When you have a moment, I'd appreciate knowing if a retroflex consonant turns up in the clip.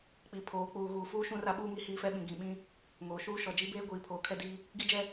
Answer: no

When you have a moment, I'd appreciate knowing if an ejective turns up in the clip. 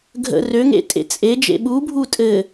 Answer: yes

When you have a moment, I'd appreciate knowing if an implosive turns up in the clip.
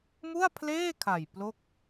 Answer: no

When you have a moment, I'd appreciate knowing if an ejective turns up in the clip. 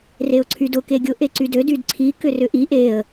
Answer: no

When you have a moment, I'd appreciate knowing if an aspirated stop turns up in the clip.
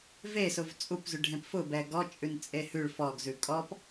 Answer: no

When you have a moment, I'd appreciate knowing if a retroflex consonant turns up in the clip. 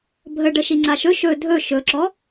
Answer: yes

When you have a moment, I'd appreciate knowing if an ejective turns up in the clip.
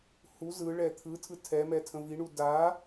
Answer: no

